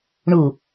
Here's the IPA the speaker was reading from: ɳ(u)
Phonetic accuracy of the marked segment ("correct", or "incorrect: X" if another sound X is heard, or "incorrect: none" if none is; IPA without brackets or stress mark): correct